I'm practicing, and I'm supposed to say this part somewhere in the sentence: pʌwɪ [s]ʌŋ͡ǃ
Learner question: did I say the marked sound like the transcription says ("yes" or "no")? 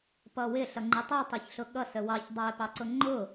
no